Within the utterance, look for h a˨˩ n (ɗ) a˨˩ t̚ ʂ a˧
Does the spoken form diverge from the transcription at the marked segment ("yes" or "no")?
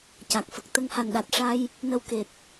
no